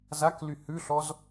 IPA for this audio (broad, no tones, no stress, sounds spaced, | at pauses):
z a k l y h ʉ ɬ ɔ z